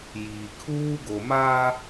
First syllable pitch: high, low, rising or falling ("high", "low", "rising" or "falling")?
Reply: low